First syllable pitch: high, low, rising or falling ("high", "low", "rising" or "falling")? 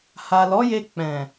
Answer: low